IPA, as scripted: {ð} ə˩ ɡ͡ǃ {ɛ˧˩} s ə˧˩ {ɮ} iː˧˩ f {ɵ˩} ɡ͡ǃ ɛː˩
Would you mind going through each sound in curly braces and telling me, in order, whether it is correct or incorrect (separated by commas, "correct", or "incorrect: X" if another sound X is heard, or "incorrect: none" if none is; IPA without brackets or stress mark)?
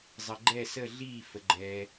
incorrect: zˤ, correct, correct, incorrect: ə˩